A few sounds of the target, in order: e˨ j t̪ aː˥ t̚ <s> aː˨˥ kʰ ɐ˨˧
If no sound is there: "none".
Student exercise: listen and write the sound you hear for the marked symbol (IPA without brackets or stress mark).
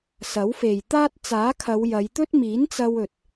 t͡s